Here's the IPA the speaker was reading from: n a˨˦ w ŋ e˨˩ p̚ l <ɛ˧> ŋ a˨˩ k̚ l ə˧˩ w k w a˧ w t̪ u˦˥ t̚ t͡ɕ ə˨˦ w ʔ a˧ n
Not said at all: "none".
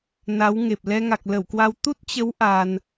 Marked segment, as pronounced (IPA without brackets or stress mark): ɛ˧